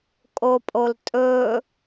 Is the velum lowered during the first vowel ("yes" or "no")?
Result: no